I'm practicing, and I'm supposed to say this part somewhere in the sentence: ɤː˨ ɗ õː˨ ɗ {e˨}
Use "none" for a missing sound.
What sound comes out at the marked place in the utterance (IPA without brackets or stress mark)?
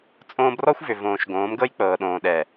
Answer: ɛ˨